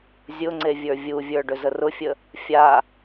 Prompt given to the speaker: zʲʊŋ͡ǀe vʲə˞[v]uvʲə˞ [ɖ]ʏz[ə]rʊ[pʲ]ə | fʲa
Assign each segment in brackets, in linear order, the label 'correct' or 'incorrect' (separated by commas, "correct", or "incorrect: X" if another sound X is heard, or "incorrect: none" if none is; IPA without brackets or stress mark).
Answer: incorrect: vʲ, correct, correct, incorrect: fʲ